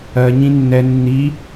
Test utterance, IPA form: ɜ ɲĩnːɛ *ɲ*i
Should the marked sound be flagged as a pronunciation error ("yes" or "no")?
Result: yes